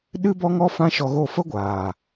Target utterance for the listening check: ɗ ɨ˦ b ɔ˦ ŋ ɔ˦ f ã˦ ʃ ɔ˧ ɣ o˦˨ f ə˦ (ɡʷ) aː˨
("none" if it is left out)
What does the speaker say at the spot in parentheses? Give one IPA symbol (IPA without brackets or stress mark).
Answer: ɡʷ